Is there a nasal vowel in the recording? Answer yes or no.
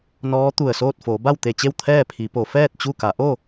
no